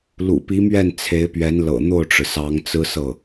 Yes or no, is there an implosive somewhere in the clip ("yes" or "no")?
no